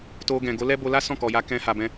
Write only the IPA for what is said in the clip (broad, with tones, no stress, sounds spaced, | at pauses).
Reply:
t o˧ ɡ ɛ̃˨ ɡ o˨˦ l ɛ˦ b o˧ l a˦ s ɔ̃˦˨ k ɔ˨ j a˧ k ɛ̃˧ h a˨ b ɛ̃˧